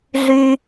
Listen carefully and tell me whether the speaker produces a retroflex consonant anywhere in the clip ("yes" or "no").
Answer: no